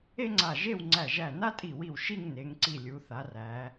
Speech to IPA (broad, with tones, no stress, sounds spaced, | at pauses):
e˥ ŋ͡ǀ a˧˩ ʒ e˥˧ w ŋ͡ǀ æ˧˩ ʒ æ˧˩ n a˥ tʼ i˧˩ w i˧˩ w ʃ i˥˧ ŋ n e˩˧ ŋ ǀ i˧˩ lʲ u˩˧ θ a˩˧ r æ˩˧